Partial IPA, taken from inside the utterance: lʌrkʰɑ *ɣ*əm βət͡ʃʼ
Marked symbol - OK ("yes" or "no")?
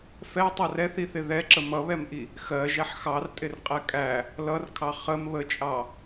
no